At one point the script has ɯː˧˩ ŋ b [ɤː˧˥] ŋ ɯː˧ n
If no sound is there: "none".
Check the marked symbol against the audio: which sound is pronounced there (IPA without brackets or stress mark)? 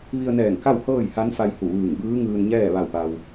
ɯː˧˥